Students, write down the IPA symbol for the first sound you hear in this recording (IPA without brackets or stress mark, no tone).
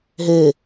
ɦ